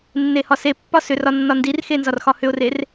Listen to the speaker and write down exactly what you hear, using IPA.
nː e h ɒ s e pː ɒ s ʏ r ɒ nː ɒ n d i r x e n z ɒ r x ɒ h ʏ ʊ̯ r e r

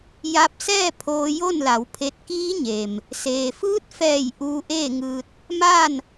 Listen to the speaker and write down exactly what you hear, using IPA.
j a˧ p̚ s ɛː˥˨ pʰ oː˧ j o˥˨ n l a˩˧ w pʰ e˧ t̚ k iː˧˥ ɲ e˩ m | s eː˩ f ɯː˧˥ t̚ f ɛː˧˩ j ʔ uː˧ ʔ eː˥˨ ŋ ɯː˧ t̚ | m aː˥˨ n

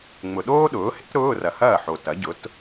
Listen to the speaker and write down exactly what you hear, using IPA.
ŋ͡m ʊ˨ ɗ oː˥ ɗ ʊː˩˥ h ḛ˥ t ɾ ʊː˧˥˧ r ɐ˨ h ɐː˥˩ ħ o˨ t ɐ˩˥ ɟ ʊ˩˥ t

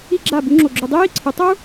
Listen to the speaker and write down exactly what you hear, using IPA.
i˦ ɡ͡ǁ a˦˨ b u˦ ŋ͡ǁ o˧ ɡ͡ǁ u˧ dˤ i˦ j i˧ ǀʰ ɯ˨˦ tˤ u˦

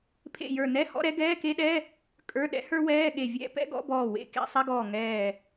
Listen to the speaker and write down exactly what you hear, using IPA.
pʰ ḛ˧˩ j ə˞˧˩ n ɛ˧˥˧ h ɔ̰˧˥˧ ɾ ɛ˥ ɡ ɛː˧˥˧ k e˥ ɗ ɛ˧˥˧ | kʼ ə˞˧˥˧ ɗ ɛ̰˥ h ə˞˥ w ɛː˧˥˧ ɠ e˧˩ vʲ ɛ̰˥ p ɛ̰˥ ɡ ɔ̰˧˥˧ b ɔː˧˩ w ḛ˧˥˧ k ḛ˧˥˧ sˤ ɛ˧˥˧ ɡ ɔː˧˩ ŋ ɛː˧˩

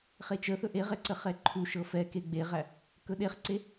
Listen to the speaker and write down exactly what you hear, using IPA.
χ e t͡ʃ ə θ ɵ ʔ e ʁ ɛ ǀ ə χ ɛ ǃʰ u ʃ ɤ f ɛ k e ɡ͡b e ʁ æ | k ɵ ɗ e χ ǀ e

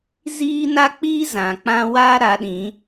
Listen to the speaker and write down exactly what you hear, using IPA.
z iː˦ n a˦ k͡p iː˦ z ã˨ k͡p ã˦ w aː˦ ɾ a˨˦ ɗ ĩ˨˦

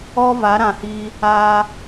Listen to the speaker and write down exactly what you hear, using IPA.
ɔ˦ v a˨˦ ɾ ã˨ h iː˧ | aː˧

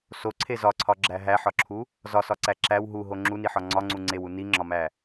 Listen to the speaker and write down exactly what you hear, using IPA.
s o ǀʰ e z ɒ ǀʰ ɒ ɡ͡ǁ æ ɦ æ ħ ɒ ǁʰ u | z ɒ s ɒ ǀ æ ǁ æ w ɦ u ɦ o ŋ͡ǁ u n i ħ ɒ ŋ͡ǀ ɒ ŋ͡ǀ u ŋ͡ǀ e w u n i ŋ͡ǁ ɒ m æ

